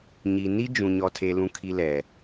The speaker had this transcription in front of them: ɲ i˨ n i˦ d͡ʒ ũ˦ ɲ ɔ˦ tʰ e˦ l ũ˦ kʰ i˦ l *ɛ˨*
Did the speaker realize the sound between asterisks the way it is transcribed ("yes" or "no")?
yes